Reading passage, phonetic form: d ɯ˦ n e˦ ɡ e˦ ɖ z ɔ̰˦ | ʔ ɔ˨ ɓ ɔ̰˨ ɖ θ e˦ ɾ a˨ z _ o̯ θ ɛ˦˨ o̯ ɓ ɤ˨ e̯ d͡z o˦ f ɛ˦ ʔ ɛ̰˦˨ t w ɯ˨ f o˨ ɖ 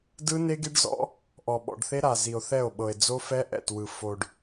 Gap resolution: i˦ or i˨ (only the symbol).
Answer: i˨